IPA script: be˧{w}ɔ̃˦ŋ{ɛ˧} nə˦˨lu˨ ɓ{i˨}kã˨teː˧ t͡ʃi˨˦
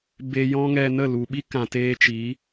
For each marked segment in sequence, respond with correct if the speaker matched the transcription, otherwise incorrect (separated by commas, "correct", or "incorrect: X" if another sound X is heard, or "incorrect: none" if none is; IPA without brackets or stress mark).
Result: incorrect: j, correct, incorrect: i˦